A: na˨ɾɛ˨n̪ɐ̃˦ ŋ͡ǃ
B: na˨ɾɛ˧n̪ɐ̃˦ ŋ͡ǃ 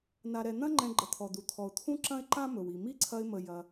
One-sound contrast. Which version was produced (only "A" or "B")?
A